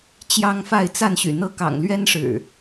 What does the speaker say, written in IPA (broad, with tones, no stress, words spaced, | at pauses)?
t͡ɕjɑ˦ŋfa˥˨ɪ̯ t͡sa˥˨nɕy̰˨˩ n̪ɤ˥˨kɑ̰˨˩ŋ lɥɛ˦nʂɻ̩˨˩